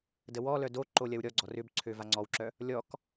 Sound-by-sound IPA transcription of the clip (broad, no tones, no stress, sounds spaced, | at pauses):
d ə w ɔ l œ d o ǃ o lʲ ɐ w ɾʲ ɔ ɡ͡ǀ ɔ r ʏ b ǀʰ ø v a ŋ͡ǀ ɔ w ǁ œ | lʲ ɔ k